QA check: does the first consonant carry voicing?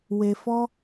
yes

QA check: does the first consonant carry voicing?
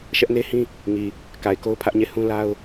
no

